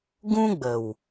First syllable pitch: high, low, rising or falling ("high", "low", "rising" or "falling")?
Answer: high